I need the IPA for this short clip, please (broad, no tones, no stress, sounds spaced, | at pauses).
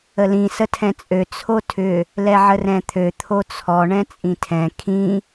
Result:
ə l ĩ s ə tʰ ɛ̃ t͡sʼ ø t͡sʰ o tʰ ʏ | l ɛ ʕ ə r ɛ̃ t̪ʰ ø t̪ʰ o t͡sʰ ɔ ɳ ɛ̃ t͡sʼ ĩ tʰ ɛ̃ kʰ ĩ